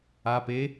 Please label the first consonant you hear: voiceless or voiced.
voiceless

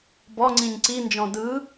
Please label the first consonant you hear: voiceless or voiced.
voiced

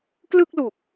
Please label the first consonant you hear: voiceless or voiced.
voiceless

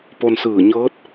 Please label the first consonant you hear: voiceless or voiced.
voiceless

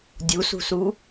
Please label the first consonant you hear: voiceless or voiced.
voiced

